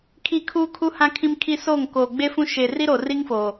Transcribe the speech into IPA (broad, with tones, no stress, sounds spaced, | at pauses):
kʰ i˦˨ kʰ uː˦ kʰ u˦ h ã˦ kʰ ĩ˦ m kʰ i˦ s oː˦˨ ŋ k oː˨ ɡ͡b e˦ f ũ˦ ʃ eː˨ r i˦ ɾ oː˨ r i˦ ŋ f oː˨